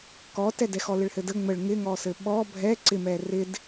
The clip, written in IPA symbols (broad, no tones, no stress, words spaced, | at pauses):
kɔtɛdɛxɔ lɪɭhɘdə ŋ͡məɭ ŋɪŋɔsɘ ɓɔ bʱɛ ǀɪmɛ rɪd